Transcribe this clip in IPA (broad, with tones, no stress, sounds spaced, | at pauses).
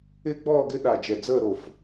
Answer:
ɪː˦ ɡ͡b ɔː˦˨ ɡ ɪ˦ ɗ a˨˩ d͡ʒ ɛ˨˩ d͡z əː˦˨ ɾ o˨˩ f